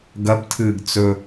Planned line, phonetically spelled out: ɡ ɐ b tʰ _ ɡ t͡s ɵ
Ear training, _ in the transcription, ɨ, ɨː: ɨː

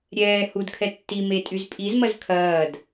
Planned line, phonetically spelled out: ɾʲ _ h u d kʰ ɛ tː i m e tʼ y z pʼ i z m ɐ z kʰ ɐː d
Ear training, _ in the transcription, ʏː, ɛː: ɛː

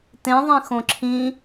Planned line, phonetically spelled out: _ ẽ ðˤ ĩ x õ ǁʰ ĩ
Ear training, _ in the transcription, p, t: t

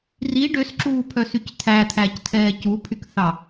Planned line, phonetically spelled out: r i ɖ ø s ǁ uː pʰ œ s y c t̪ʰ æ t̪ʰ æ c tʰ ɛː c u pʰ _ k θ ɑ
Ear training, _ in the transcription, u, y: y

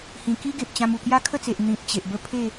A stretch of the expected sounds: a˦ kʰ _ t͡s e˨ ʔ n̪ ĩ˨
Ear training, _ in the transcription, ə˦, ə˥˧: ə˥˧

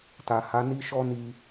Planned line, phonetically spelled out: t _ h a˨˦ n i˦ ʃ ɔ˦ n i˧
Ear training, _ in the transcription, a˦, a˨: a˨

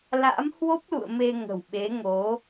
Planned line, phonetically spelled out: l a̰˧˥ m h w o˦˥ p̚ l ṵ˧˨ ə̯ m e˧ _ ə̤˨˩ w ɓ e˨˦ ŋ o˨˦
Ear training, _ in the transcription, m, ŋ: ŋ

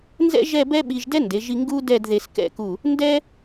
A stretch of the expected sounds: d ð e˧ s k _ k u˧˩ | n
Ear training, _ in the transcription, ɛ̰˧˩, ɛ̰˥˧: ɛ̰˥˧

